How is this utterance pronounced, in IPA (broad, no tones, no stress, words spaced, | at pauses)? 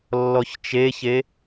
lːɔçt͡ʃeçe